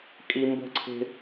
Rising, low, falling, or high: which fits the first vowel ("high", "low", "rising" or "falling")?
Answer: low